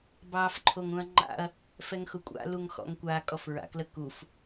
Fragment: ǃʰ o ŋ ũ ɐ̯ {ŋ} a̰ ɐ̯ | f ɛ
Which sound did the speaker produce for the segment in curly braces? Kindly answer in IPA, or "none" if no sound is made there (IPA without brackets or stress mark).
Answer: ŋ͡ǃ